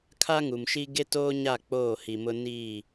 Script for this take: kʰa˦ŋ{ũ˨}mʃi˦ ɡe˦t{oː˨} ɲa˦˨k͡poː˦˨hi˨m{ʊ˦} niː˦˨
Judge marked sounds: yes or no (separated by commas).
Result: no, no, yes